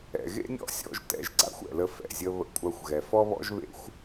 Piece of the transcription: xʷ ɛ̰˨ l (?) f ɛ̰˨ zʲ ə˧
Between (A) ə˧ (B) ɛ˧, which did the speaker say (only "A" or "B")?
A